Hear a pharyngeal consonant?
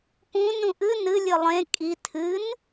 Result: no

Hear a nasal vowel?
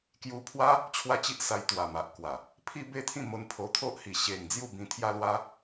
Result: yes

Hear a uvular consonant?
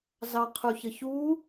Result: yes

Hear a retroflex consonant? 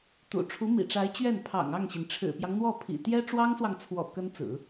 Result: yes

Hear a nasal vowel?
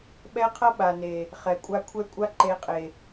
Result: no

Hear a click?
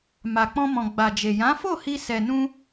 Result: no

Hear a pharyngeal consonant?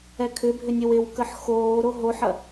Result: yes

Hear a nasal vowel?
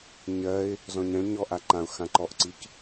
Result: yes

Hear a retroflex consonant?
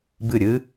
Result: no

